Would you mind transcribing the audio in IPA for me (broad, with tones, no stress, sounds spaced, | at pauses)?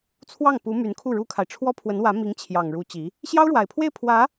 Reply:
t͡sʰ w ɑ˥˩ ŋ p u˧˥ m y˧˥ n kʰ u˥˩ ɻ u˥ kʰ a˨ ɪ̯ ʈ͡ʂʰ w ɔ˥ pʰ w ə˧˥ n w ä˧˥ m i˧˥ ŋ t͡ɕʰ j ɑ˨˩ ŋ ɻ u˧˥ t͡ɕ i˧˥ | ɕ j ɑ˥ ʊ̯ ɻ w a˨˩ ɪ̯ pʰ w e˥˩ ɪ̯ pʰ w ä˧˥